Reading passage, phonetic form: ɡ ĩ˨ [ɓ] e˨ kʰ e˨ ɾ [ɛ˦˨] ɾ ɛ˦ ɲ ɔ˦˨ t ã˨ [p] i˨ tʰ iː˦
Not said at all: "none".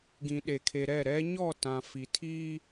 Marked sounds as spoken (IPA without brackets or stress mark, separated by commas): ɗ, ɛ˦˨, f